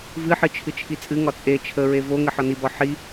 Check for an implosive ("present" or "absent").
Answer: absent